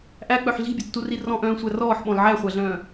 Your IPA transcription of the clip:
ʔ æ k͡p œ ħ ɮ i̤ bʲ ɵ tː u r i r ɔ̃ ʔ œ̃ː sʷ æ r ɔː ħ ɓ ɔ̃ l ʕ æ χʷ æ ɮ œ̃ː

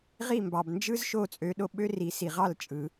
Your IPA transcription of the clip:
ʁ i˥˩ m b ɑ˩ b n d͡ʒ ɯ˥ z ʃ o˥˩ t͡sʼ ø˩˥ ɗ o˧ ɓ ø˥ r i˩˥ s i˩ ʁ ɑ˥˩ l t͡ʃʼ ɯ˩

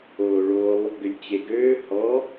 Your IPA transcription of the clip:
oː ɭ o lˠ | ɡ ʏ lʲ t͡ɕ e ɡ øː h ɔ

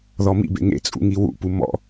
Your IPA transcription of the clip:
ð ɔ m ḭ b ḛ ŋ ḛ t͡sʼ ṵ ŋ i w ṵ p u m ɔ̰

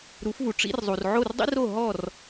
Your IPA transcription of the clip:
ɾ u˩˥ f v u˩ ʈ͡ʂ ḭ˥ r zˤ u˩ r ʕ o˥˩ r dˤ ḭ˥ r o˥˩ ɦ ɔ˥˩ r

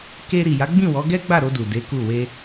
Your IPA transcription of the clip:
k e˧ ɾ i˨ j a˨˦ ɡ͡b ĩ˦˨ w ɔ˨˦ ɡ ɛ˦ ɡ͡b a˦˨ ɾ o˧ d u˨ d e˨˦ k u˦˨ w e˧

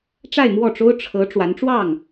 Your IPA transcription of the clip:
ʈ͡ʂ a˥˧ ɪ̯ m w ɔ˥˩ ʈ͡ʂ o˥ ʊ̯ ʈ͡ʂʰ ɤ˧˥ ʈ͡ʂ w a˧˥ n ʈ͡ʂ w ɑ˥˩ ŋ

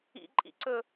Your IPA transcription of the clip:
ḭ ǃʼ ḭ ǀ ɵ

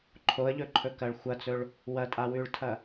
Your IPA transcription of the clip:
ǃʰ o ə̯ ʎ ɵ ǃʰ ɵ k ɐ ɭ xʷ ɐ t͡s ɵ ɭ | w ɐ tʼ a w ʉ ɭ tʰ ɐ

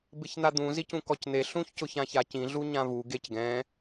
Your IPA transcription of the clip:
b ɪ ç n̪ a d̪ ũ z i c ũ k ɔ c n̪ e ɬ ũ ç c ʊ ç ã ç a c ĩ ɮ u ɲ ã v u ɡ e c ɡ ɛ̃

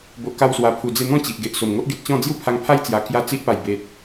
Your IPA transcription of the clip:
b o˨ ʔ k a˧ w s w a˨˩ pʰ u˨˩ d͡z e˧ n̪ ɔ̃˥˧ t͡ɕ i˨ ʔ ɡ e˨ ʔ s o˨˩ m ŋ o˦ ʔ ɡ e˨ t̚ t͡ɕ ɔ̃˥˧ d͡z j u˦ pʰ a˧ ŋ pʰ a˦ j t͡s j a˨˩ k j a˥˧ t͡s i˦ ʔ p a˨˩ j b e˨ t̚

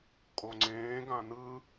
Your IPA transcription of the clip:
kʼ o ŋ͡ǀ ẽː ɡ ã n ɯ

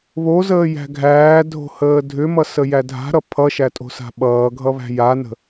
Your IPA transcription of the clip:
β o z əː j æ̤ ɡʱ æː dʱ o̤ h əː dʱ ʏ m ʌ s ə j æ dʱ a̤ ɾ ʌ pʰ ʌ ʃ æ tʼ o̤ s a̤ ɓ ʌː ɡʱ ʌ β æ̤ j a n ə̤

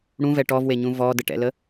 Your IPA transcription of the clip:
ɽ ũ v ɛ ʈ ɔ v w e ɲ ũ v ɔ d ə ʈ ɛ̰ l ə

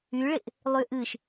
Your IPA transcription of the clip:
y ɭ ɪ ʔ | lˠ y ʔ ɨ ʃ

